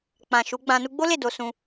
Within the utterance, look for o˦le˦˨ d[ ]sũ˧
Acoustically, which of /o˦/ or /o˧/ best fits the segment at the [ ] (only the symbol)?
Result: o˧